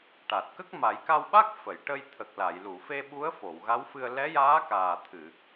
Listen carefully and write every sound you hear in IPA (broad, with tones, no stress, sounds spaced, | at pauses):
ʈ a˨˩ t̚ k ə˦˥ k̚ m a˨˩˦ j k a˧ w ɓ a˦˥ k̚ f ə˨˩˨ j ʈ ə˧ j t̪ʰ ə˨˩ k̚ l a˨˩˨ j l u˨˩˨ f e˧ ɓ u˧˥ ə̯ f o˨˩˨ w ɣ a˧˥ w f ɨ˧ ə̯ l ɛ˧˥ j aː˧˥ k aː˨˩ t̪ʰ ɨ˨˩˨